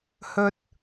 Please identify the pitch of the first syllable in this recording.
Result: low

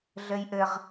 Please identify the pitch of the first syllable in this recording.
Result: high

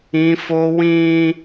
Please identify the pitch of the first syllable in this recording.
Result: high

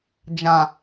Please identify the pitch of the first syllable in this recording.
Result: low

